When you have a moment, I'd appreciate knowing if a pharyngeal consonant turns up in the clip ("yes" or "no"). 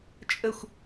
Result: no